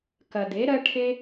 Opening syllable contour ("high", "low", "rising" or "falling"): low